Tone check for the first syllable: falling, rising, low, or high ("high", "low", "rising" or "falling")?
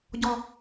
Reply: high